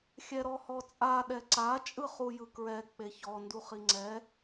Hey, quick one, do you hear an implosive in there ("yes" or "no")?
yes